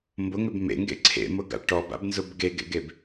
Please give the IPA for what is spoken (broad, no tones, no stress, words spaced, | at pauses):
mbʊŋʏb mḛŋɡḛ ǀʰḛmʊɡa̰ ʈɔba̰bnzʊb ɡeɡḛɡeb